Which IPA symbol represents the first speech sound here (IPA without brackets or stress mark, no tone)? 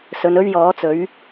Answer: s